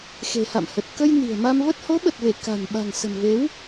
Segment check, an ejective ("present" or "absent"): absent